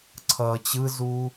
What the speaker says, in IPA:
ǀʰ ʌː t͡ɕ ɯ z uː

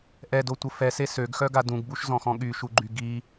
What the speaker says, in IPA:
ʔ ɛ d o tʷ ə f ɛ s e s ø ɡ x œ ɡ a d ũ ɡ b u ʃ z ɔ̃ x ɔ̃ ɠ y ʃ u ɡ͡ǃ y ɡ i

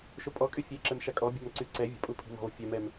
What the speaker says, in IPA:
ʃ o pʼ ɔ kʼ y fʲ e ǁ ɛ m ʃ a kʼ ɔ bʲ a̤ m ǀ y ǀ ɛ vʲ ə̤ pʼ u pʰ i̤ m ɔ̤ β ə̤ fʲ œ m ɛ m

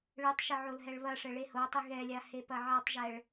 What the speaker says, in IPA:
ɭ ɨ tˤ ʃ ɘ ʕ o l ɦ ɛ ɭ β ɐ ʂ ɘ ɭ e h o tˤ ɨ ɣ ɛ lʲ a h e p ɐ ʕ a tˤ ʒ ɛ ɭ

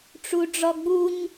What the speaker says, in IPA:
ʈ͡ʂ u ɖ͡ʐ ɔ ɡ͡b u ɲ

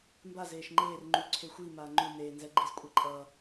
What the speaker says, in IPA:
m b a z eː ʃ ŋ͡ǃ eː r ŋ͡ǃ u ǀʰ e xʷ iː m aː ŋ͡ǃ u n eː n z ɛ ɡ͡ǃ i z kʷʼ i ǃʼ ʌː

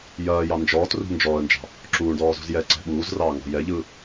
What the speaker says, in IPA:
j ɐː j ɑ n d͡ʒ ɔː t r ṳ n d͡ʒ ɔː ə̯ n d͡ʒ ɑ̤ | ǁ uː ɳ d ɔː z ṳ z j ɛ ǀ ɛ̤ ɓ uː z r ɑː ŋ ɔ̤ j ɛ ʎ ɯ

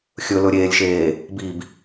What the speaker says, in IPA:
xʲ ɵ l ɵ ɾʲ eː lʲ ʃ eː | b i b

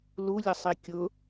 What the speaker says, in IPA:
l u lʲ ə sˤ i kʲ ʊ

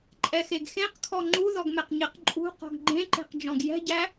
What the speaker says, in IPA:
ǃʼ ɛ x e ɡ x ẽ q kʰ ɔ ŋ͡ǃ u ð ɔ ɡ m ɛ q ɲ e q ǃʼ ṳ q ɔ̤ ɡ ɡ͡ǃ ẽ ǃ e̤ q d͡ʒ ɔ̃ ɡ j ɛ̤ ɟ æ

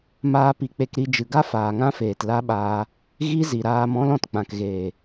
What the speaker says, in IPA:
m aː˧ p i˨ k͡p e˧ k ɾ i˧ d͡ʒ ɨ˨ ɡ a˦ f aː˨ ŋ ã˦ f eː˨ t l a˦ ɓ aː˧ | ɣ i˦ z i˨ ɾ aː˧ m ɔ̃˦ l ɔ̃˨ t k͡p ã˨ k ɣ eː˨

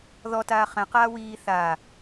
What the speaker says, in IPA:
ð ɔ t aː χ ɛ̃ q aː w iː θ a

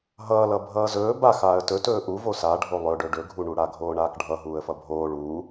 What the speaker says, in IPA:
ɦ ʌː l ʌ bʱ ʌː z ɵː b a x aː ə̯ t ɵ t ɵː ʔ u v o s a ɖʱ o lˠ ɵ ɖ ɵ ɖ ɵ ɡʱ u ɳ u ɽ a ɡʱ oː ɳ aː k ɖʱ ʌ ɦ uː ə̯ f ʌ bʱ oː ɭ uː

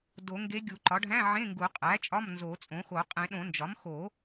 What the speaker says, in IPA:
d o˨˩˦ ŋ ɡ e˧˥ ɡʲ u˨˩˦ ǃ ɒ˩˥ ɖʱ æ̃˧˥˧ ʕ ẽ˧˥˧ ŋ ɡ u˨˩˦ qʼ æ˩˥ t͡ʃʼ ɒ˧˥˧ m n z o˨˩˦ t͡sʼ õ˩˥ x o˨˩˦ qʼ ẽ˨˩˦ ɗ õ˨˩˦ n d͡ʒ ɒ˩˥ m x o˨˩˦

